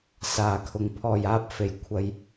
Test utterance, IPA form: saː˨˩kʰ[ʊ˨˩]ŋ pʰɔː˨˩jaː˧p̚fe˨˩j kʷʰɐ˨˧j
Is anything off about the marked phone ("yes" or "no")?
no